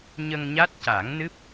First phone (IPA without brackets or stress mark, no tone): ɲ